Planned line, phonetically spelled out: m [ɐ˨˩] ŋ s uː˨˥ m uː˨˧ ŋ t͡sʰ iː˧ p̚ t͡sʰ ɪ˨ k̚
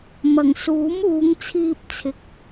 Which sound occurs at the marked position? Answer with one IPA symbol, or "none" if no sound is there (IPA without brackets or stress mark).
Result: ɐ˨˩